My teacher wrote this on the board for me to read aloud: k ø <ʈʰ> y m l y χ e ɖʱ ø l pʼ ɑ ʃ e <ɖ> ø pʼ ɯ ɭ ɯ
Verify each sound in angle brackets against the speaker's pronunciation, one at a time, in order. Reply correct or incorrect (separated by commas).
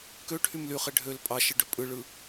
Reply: correct, correct